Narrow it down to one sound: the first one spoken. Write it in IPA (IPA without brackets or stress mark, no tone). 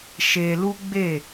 ʃ